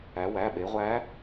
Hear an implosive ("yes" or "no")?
yes